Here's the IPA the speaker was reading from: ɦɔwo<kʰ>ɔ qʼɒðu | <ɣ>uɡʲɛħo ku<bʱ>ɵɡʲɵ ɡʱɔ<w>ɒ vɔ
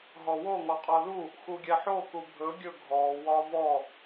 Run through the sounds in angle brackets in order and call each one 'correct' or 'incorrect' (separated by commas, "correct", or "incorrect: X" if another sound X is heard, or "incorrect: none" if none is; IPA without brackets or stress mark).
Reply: incorrect: ŋ, incorrect: x, correct, correct